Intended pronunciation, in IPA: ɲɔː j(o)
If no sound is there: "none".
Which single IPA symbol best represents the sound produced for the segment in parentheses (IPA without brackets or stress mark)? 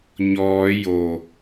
o